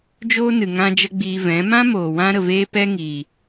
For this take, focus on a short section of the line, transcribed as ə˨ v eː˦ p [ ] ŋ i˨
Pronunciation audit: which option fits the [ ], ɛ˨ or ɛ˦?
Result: ɛ˦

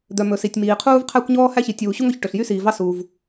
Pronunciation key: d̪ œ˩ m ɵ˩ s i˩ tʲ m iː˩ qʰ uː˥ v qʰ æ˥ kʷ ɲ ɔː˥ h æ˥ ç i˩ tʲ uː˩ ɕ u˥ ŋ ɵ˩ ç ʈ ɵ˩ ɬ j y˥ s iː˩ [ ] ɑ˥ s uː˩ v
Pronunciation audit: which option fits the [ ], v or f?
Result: v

